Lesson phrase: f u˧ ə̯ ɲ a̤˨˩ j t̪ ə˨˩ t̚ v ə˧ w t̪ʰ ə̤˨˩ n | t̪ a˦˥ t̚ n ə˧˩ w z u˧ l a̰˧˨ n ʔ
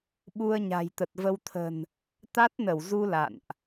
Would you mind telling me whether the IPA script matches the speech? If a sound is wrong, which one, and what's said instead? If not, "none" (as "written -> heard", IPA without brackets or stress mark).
f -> ɓ